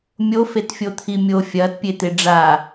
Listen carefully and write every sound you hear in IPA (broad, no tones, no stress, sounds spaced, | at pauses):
mʲ o f e t fʲ o t̪ʰ i mʲ o fʲ ɐː t pʲ e t̪ e ɖ͡ʐ a